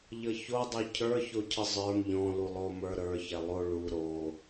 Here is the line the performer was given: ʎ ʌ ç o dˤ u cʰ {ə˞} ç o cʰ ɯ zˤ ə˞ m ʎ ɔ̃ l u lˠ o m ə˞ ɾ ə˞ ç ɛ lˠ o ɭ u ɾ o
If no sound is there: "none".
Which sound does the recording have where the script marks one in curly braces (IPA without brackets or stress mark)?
ə˞